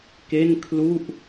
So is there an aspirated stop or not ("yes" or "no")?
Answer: yes